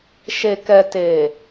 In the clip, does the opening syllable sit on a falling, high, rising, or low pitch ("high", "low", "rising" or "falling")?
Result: low